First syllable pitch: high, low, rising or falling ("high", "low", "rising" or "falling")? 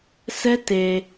high